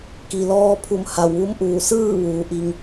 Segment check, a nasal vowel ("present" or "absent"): absent